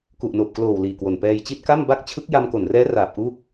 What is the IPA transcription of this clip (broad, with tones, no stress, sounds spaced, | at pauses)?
k u˨˩ ʔ n oː˨˩ p̚ k l oː˨˩ w l iː˨˩ k w o˨˩ n p ɛː˧ j t͡ɕ i˥˩ t̚ k a˥˩ m b a˥˩ k̚ t͡ɕʰ ɯ˦˥ k̚ j a˧ m k o˨˩ n r ɛː˦˥ r aː˨˩ p̚ ʔ u˦˥ k̚